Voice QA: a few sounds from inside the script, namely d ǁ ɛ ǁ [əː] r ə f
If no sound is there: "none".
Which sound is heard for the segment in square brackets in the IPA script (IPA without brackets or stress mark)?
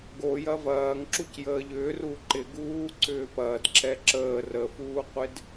əː